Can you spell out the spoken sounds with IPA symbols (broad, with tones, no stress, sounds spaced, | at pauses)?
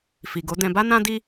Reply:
f i˨ ɡ o˨˦ d ɛ̃˧ b a˦ n ã˦ d i˦